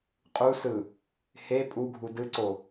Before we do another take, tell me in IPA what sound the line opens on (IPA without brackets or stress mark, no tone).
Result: qʼ